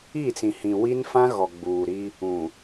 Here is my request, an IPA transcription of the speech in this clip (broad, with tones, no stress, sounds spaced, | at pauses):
i˦˨ t͡s ĩ˨ h ĩ˨ w i˦ n f ã˦ ɣ ɔ˨ ɡ͡b uː˨ ɾ i˦ | ũ˨